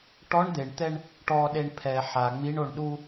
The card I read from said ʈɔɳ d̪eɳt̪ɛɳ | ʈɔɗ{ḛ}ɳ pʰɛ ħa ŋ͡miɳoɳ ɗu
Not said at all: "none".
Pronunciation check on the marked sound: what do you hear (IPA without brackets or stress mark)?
e